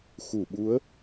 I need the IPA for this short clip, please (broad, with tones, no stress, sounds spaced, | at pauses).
x u˧˩ ɓ u˨˦ ə̯